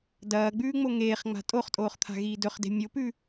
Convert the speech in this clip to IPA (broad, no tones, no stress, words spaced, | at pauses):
dɐːɡ͡bʉːŋ͡mo ŋeːχŋ͡ma̤ tʼoχtʼoːχt̪ʰa̤ɣiː dɵχde̤ mʲopʉ